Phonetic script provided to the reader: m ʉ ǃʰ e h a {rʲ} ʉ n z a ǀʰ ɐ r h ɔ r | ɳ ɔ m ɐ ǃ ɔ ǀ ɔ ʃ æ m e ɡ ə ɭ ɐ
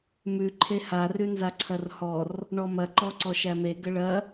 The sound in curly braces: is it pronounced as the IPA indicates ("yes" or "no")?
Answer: no